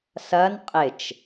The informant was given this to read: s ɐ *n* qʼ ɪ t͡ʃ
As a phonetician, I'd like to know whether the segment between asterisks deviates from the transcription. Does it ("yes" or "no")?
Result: no